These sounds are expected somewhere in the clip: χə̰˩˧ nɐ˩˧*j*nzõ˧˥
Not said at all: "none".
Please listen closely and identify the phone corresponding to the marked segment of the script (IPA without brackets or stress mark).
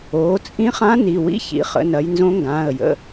j